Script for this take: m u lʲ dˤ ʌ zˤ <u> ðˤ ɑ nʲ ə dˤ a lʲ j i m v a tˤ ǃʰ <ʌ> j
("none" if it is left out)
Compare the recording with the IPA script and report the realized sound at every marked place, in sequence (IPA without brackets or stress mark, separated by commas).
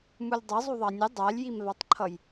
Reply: u, ʌ